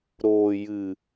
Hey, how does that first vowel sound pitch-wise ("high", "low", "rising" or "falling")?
low